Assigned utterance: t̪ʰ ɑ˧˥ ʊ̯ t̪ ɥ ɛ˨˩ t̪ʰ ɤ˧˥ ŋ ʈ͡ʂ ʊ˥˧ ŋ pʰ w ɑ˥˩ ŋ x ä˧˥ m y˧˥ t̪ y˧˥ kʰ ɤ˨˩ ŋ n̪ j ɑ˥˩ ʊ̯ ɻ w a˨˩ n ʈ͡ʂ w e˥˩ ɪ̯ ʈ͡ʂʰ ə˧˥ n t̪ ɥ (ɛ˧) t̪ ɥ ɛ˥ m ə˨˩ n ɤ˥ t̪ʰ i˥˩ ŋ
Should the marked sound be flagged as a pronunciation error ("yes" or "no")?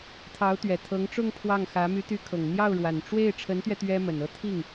no